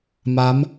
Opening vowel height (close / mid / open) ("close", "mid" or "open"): open